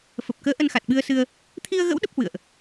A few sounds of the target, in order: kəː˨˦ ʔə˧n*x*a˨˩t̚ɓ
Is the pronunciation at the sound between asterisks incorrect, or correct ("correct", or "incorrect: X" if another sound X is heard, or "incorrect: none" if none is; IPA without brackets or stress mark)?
correct